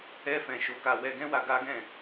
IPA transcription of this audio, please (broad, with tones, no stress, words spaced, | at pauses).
ɛ˧fɛ̃˨ ʃo˨˦ka˧ wɛ˧ɡɛ̃˦wa˧ ɡa˦ɡɛ̃˦˨